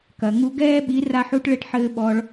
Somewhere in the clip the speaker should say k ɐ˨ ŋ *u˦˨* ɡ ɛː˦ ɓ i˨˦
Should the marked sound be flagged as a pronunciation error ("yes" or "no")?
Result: yes